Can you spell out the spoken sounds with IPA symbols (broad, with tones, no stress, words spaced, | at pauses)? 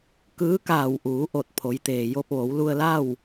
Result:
kɯː˧˥kaː˧˩w ʔuː˩˧ʔo˧˩t̚ pʰo˩˧j t̪eː˩jo˧p̚ʋo˩˧w lu˧ə̯la˥˨w